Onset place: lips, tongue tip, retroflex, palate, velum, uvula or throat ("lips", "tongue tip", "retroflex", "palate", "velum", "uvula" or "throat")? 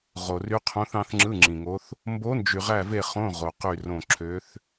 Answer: uvula